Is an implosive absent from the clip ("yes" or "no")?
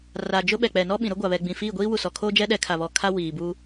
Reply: no